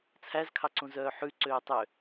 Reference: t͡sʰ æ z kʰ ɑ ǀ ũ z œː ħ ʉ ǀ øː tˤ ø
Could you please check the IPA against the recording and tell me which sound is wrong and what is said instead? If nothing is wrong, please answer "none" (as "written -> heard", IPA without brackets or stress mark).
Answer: none